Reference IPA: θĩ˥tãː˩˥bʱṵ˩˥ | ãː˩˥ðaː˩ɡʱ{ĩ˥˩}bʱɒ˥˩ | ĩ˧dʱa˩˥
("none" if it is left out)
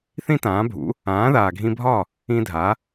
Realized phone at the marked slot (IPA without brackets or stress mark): ĩ˧